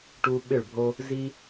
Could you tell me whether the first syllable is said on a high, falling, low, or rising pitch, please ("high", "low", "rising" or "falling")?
high